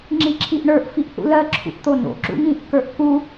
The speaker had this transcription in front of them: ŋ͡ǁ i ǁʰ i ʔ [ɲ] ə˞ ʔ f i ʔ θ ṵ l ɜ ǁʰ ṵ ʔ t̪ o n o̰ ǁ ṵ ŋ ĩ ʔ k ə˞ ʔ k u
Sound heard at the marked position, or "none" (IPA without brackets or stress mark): ɳ